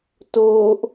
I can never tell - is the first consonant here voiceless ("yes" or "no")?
yes